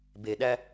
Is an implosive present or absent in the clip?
present